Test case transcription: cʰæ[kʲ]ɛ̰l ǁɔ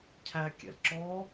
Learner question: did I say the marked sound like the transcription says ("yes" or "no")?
yes